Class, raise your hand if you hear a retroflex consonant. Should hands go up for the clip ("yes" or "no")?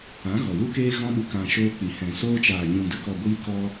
no